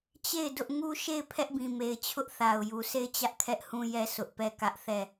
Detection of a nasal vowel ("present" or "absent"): present